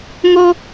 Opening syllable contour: high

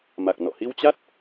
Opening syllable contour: low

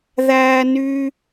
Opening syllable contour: high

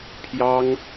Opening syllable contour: high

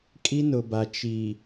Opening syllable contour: high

